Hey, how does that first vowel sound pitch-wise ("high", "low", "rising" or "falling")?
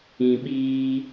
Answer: low